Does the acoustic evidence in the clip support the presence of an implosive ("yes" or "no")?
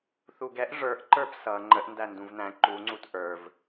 no